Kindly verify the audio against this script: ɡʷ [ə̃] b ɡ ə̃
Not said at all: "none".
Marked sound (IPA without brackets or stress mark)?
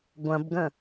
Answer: ɐ̃